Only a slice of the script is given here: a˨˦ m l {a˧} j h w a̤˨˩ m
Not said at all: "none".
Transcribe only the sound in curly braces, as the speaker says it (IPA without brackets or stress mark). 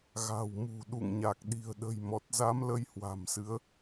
ə˧